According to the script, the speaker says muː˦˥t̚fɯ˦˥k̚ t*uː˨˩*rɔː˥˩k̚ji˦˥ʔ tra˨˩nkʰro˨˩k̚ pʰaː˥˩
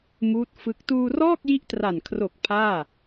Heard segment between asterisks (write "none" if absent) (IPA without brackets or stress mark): uː˧